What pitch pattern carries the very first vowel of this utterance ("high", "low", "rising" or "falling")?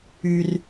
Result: low